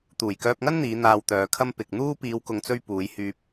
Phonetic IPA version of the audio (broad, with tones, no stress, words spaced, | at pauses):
t̪uː˨˩jkœː˧p̚ŋɐ˥nn̪iː˨˧ n̪aː˧wt̪œː˨˧kʰɐ˥m pɪ˨k̚ n̪uː˥ piː˨˧wkʊ˨ŋt͡sɵ˧ɥ puː˨˧j hyː˨p̚